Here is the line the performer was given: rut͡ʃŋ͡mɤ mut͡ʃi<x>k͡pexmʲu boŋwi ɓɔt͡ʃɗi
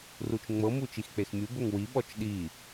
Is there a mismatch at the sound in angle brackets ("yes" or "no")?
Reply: no